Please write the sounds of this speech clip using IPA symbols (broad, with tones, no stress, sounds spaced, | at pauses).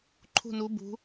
ǃʰ ṳ˧˩ n u˩˧ b ṳ˩˧